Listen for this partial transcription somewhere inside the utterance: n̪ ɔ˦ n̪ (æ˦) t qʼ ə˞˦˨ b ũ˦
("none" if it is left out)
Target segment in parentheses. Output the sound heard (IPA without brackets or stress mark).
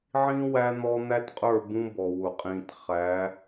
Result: æ˦